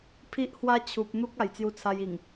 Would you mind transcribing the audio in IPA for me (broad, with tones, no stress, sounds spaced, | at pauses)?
pʰ i˦ ʔ h w a˦ t͡ɕʰ u˨ p̚ n̪ u˦ k̚ a˨˩ j t͡s j u˧ t͡sʰ a˧ j i˨˩ ŋ